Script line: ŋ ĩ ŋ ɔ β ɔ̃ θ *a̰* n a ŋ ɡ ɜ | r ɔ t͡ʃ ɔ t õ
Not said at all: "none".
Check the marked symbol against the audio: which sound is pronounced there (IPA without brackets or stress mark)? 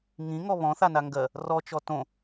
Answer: a